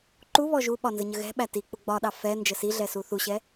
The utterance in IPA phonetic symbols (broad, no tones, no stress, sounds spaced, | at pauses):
ǃ u β ɔ ʒ u ɓ ɒ n z ə ɲ ə ɣ ɛ̤ ɓ æ t i k͡p ʊ ɡ͡b ɒ ɗ ɑ f ɛ n d͡ʒ ə s i ɮ ɛ s u θ u ɕ ɛ